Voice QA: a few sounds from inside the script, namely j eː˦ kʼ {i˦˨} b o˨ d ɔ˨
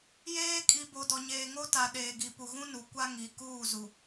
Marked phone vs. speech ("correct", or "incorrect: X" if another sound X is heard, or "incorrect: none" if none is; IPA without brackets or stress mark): incorrect: i˨